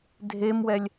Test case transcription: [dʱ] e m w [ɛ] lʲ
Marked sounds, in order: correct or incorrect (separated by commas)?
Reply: correct, correct